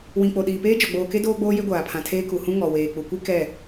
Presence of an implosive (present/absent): present